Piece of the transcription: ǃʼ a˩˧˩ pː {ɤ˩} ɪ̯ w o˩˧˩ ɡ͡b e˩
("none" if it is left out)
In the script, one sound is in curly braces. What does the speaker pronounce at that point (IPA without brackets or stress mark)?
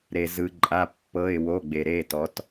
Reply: ɤ˩˧˩